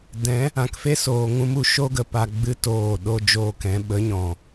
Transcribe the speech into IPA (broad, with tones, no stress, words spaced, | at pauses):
dɛ̃˨˦ | ã˨kfe˦soː˨ ŋũ˦mu˧ ʃo˦ ɡə˨pa˧ɡ͡bɨ˦ toː˦˨ɗo˦ d͡ʒoː˧kɛ̃˨˦ ɓə˨˦ɲɔ̃˨